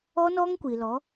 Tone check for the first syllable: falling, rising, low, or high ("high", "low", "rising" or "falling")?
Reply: high